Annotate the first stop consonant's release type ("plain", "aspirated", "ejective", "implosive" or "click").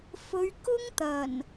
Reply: plain